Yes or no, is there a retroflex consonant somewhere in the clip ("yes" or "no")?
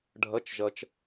yes